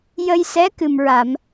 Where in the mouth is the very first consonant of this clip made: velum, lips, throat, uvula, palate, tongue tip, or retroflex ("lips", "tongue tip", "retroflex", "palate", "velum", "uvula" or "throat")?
palate